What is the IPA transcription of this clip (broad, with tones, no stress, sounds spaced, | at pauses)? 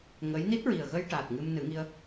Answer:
ŋ ə˧˥ j n i˦˥ t̚ ɹ i˨˩ ə̯ ɣ ə˧ j ʈ a˨˩ t̚ ŋ ɨ˧ m n ɨ˨˩˦ ŋ i˧ ə̯